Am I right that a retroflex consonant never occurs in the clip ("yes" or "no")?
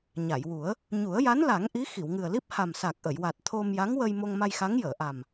yes